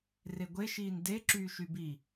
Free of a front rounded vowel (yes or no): no